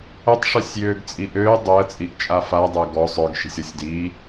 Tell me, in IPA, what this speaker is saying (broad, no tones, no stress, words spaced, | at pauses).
œtˤʂœsʲjøːɡt͡sʼi ʔøː dˤəːt͡sʼiʔt͡ʃʼa fadˤœ ɡɔ sˤœɡʃi̤sʲɔsʲ diː